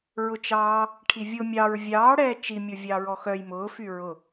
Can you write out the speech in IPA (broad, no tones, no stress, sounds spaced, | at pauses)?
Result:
ɹ ʊ t͡ʃ ɑː | ʈʰ i vʲ ʊ mʲ ɑ ɹ vʲ ɑː ɽ ɛː t͡ʃ i mʲ ʊ vʲ ɑ ɹ ɔ x œ j m ʊː f y ɹ ʊ